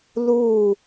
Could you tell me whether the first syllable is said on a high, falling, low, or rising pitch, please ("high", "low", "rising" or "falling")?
falling